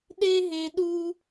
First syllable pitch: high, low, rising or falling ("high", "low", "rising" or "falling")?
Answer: high